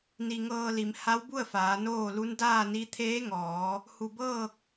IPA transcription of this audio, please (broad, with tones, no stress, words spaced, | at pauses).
ni˧ ŋɤː˧li˩˧m ha˧˥wbu˥˨ə̯faː˩˧ noː˥˨ lu˧˥n daː˥˨ni˧˥ t̪ʰeː˧˥ŋɔː˩˧ | hu˧˩ bɤː˥˨k̚